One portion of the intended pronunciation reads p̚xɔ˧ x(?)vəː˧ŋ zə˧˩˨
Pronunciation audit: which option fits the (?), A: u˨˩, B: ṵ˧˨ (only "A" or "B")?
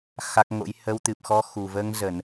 A